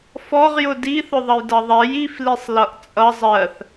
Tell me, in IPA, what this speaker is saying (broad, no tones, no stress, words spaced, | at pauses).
fɔʁjʊ diθʊðˤʌjdʌ ðˤɛj iflisˤ lʌʔt͡sʼʌ zˤɜθ